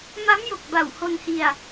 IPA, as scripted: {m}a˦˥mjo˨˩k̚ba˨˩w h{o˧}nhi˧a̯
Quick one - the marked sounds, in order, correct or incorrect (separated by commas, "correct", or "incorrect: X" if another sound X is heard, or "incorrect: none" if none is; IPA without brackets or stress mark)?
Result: correct, correct